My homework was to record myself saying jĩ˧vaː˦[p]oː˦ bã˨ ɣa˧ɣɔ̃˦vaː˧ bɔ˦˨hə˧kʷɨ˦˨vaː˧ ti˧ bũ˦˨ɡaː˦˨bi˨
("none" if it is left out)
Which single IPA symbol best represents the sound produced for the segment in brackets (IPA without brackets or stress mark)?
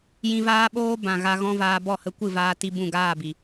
ɓ